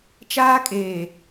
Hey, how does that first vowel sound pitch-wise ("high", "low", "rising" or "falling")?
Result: high